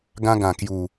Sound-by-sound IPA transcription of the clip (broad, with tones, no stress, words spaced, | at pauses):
ɡã˧ɡã˨˩kju˨˩